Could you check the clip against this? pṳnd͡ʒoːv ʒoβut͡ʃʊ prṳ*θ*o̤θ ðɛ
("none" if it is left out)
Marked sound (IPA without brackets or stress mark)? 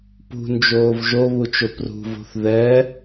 v